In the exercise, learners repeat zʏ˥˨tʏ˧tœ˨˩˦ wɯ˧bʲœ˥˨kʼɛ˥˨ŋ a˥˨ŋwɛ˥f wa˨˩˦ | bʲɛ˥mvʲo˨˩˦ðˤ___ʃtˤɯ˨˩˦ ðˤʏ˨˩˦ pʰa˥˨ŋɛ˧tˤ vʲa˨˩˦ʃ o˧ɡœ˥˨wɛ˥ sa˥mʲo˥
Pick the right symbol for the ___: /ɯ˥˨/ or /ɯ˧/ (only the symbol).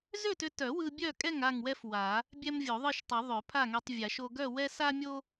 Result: ɯ˥˨